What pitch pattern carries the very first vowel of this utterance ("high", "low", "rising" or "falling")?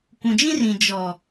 low